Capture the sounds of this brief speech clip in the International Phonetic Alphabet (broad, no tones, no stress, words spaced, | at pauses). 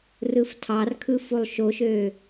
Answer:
rɯftʰɑrkʰɯ fulˠʃoʃøː